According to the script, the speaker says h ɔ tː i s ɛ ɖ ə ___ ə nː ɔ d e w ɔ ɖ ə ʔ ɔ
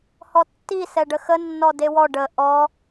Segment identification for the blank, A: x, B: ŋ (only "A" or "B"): A